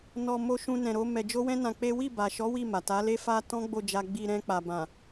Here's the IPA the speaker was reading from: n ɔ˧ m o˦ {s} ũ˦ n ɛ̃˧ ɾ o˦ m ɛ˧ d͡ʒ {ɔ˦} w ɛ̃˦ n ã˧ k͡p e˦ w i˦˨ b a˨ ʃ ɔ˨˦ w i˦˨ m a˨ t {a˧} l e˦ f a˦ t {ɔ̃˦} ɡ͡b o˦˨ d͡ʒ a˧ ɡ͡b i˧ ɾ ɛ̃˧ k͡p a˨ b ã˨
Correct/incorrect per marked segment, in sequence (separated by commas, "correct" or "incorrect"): incorrect, incorrect, incorrect, correct